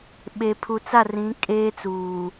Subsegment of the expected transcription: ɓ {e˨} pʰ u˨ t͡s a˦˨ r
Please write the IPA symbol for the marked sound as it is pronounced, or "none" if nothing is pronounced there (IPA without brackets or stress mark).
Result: e˨